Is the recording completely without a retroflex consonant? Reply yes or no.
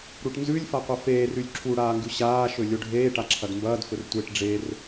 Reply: no